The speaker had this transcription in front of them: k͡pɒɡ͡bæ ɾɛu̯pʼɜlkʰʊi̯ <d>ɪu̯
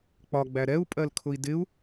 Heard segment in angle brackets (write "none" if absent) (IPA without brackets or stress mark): d